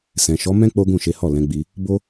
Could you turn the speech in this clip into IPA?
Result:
s ɛ̃˨ ʃ ɔ˨˦ m ɛ̃˦ k͡p o˦ ɡ ũ˦˨ ʃ e˨˦ h ɔ˦˨ l ɛ̃˨˦ ɡ͡b i˧ | b o˦

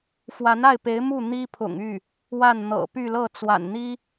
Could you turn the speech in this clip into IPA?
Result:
f w a˧˥ n a˥˩ ɪ̯ p e˧˥ ɪ̯ m u˥˩ n̪ i˥ pʰ ʊ̰˨˩ ŋ y˥˩ | w a˥˩ n n̪ ɤ̰˨˩ p y˥˧ l ɤ˥˩ t͡s w a̰˨˩ n n̪ i˥

